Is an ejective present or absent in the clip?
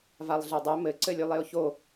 absent